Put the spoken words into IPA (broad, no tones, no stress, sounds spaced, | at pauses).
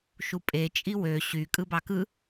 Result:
ʃ u pʼ e t͡ʃʼ i w ø ɕ y kʼ ɯ b ɑ k ɯ